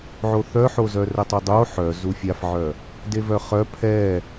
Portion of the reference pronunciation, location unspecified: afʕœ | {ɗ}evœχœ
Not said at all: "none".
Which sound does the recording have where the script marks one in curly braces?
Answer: d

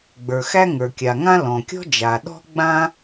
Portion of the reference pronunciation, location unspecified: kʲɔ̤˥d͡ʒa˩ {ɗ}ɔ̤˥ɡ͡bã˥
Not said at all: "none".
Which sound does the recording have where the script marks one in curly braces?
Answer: ɗ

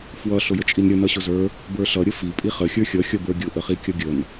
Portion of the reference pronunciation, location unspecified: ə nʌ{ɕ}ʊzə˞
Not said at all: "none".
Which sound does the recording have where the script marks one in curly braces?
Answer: ɕ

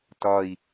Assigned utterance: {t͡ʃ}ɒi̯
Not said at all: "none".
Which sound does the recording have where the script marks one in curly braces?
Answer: t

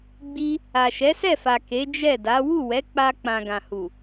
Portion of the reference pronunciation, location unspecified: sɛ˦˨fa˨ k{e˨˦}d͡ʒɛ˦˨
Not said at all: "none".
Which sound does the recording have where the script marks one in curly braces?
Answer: e˨˦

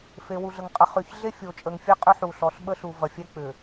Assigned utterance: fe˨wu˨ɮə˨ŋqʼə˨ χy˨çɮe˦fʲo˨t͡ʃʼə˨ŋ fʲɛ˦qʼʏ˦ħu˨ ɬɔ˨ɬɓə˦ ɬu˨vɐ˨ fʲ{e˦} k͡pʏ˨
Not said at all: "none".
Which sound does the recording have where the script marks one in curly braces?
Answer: ɛ˦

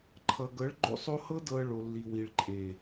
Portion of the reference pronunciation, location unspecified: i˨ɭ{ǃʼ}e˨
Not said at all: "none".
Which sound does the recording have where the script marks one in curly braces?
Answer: ǃʼ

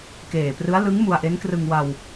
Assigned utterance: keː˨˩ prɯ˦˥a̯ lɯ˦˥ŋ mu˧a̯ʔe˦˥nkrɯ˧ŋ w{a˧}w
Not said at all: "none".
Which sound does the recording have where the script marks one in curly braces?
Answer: a˧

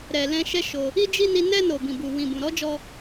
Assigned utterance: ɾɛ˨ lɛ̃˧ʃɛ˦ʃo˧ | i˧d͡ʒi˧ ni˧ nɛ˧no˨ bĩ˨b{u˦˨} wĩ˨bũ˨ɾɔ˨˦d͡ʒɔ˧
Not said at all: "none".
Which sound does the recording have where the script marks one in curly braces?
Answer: u˨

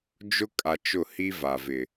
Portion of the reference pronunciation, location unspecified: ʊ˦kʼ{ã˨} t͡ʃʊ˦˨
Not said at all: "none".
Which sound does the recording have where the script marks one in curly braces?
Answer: a˨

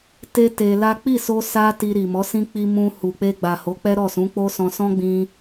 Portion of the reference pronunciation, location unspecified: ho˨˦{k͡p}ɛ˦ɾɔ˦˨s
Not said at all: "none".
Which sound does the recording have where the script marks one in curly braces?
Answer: k͡p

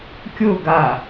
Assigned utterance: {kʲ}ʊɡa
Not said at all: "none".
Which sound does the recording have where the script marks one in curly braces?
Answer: kʲ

